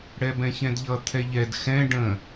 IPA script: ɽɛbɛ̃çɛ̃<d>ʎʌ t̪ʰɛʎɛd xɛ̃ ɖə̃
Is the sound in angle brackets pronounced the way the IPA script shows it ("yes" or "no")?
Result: yes